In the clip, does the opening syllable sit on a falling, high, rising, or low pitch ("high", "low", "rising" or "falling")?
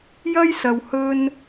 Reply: high